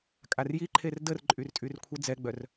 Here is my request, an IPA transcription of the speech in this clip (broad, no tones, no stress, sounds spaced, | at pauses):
kʼ a r j i ǃʰ e r d ə r ǃʼ y r tʼ y r kʷʰ ə d͡z ɛ ɡ͡b œ r